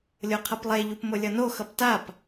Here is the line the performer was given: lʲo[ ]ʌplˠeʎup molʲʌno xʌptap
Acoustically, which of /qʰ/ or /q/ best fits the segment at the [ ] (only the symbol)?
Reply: qʰ